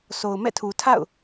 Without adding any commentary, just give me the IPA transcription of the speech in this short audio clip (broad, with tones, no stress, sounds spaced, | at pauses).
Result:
sʰ o˨ ʊ̯ m ɛ̰˦˨ tʰ u˨ tʰ a̰˦˨ ʊ̯